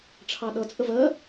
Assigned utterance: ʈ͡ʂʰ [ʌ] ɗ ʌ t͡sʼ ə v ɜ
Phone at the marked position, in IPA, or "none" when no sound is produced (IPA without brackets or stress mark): ɑ